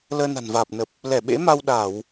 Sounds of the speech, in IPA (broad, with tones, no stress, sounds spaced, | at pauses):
l əː˧ n a̤˨˩ n v aː˨˩ p̚ n ə˨˩ p̚ | l ɛ˧˩ ɓ ḛ˧˥ m a˧ w ɗ a˧˩˨ w